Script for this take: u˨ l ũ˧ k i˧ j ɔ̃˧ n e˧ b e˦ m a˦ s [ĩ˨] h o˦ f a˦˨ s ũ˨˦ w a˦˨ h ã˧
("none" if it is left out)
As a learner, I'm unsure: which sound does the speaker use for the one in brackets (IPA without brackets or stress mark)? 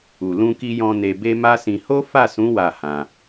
ĩ˧